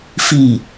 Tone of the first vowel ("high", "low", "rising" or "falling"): low